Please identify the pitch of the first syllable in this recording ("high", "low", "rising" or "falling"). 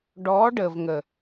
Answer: rising